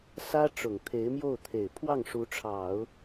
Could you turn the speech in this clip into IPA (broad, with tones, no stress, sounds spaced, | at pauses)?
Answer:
s ä˥ ʈ͡ʂ ʊ˨˩ ŋ t̪ʰ e˧˥ ɪ̯ m j o˥˩ ʊ̯ t̪ʰ e˨˩ ɪ̯ pʰ w ɑ˥˩ ŋ ʂ u˧˥ ʈ͡ʂʰ ɑ˨˩˦ ʊ̯